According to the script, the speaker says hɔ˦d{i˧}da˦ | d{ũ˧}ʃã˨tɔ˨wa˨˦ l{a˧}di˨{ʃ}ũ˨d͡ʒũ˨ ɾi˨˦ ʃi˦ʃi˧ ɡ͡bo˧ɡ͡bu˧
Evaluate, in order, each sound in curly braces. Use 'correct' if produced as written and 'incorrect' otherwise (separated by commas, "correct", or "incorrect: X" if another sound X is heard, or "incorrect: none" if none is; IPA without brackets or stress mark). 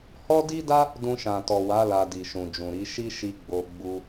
incorrect: i˦, correct, correct, correct